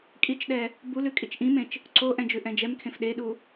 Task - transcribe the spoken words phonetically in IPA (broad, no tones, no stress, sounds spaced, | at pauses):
kʼ i t͡ʃ ɗ ɛ | b u l ʉ kʼ i t͡ʃ ʔ ĩ m ẽ t͡ʃ | ǀ o ʔ ɛ̃ d͡ʒ ʉ ʔ ɛ̃ d͡ʒ ɛ m kʰ ẽ f ɗ e ɗ u